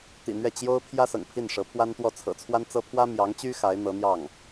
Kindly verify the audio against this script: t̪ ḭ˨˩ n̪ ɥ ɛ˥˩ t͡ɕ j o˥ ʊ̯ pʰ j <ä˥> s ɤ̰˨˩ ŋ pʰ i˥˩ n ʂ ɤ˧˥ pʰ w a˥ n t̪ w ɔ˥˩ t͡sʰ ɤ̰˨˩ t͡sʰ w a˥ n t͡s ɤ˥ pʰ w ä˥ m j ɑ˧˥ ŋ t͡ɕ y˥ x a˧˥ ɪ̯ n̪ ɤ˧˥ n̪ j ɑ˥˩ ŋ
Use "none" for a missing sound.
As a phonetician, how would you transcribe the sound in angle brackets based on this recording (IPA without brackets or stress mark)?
ä˥